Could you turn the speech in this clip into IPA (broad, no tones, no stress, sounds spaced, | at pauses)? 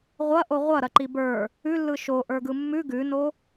ʁʷ ɐ ʔ o ʁʷ ɐ ɾ ɐ ǃ i b ə˞ | ʉ lː ɯ ʃ o ʔ ə˞ ɡ ɯ mː ʉ ɡ ʉ n o